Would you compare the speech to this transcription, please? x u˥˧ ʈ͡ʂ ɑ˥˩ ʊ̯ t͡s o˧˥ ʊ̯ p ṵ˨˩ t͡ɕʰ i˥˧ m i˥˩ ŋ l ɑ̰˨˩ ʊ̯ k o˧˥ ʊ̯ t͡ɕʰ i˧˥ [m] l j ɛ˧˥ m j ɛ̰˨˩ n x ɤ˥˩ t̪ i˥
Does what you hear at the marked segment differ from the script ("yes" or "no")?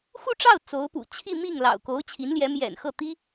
yes